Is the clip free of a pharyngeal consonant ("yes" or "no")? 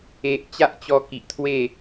yes